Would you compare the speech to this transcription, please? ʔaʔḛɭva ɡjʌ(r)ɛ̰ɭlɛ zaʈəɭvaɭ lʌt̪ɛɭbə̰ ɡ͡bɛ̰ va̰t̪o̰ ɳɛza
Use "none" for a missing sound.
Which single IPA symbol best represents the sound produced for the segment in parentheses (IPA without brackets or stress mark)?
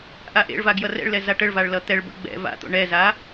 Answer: r